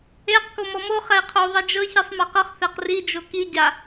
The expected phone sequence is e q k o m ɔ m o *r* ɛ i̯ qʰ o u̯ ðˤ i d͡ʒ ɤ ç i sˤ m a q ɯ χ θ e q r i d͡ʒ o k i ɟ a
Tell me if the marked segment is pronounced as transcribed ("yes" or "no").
no